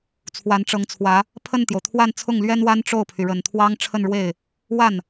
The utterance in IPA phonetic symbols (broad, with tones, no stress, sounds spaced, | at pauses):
t͡sʰ w a˧˥ n ʈ͡ʂ ɤ˧˥ ŋ t͡sʰ w ä˧˥ | pʰ ə˥˩ n t̪ j o˩ ʊ̯ t̪ʰ w a˥˧ n t͡sʰ ʊ˥˩ ŋ l ɥ ɛ˥ n w a˥ n ʈ͡ʂ o˥˩ ʊ̯ pʰ y˩ ɻ ə˨˩ n t̪ʰ w ɑ˥ ŋ ʈ͡ʂʰ ə˥˧ n ɻ w e˥˩ ɪ̯ | w a˥˩ n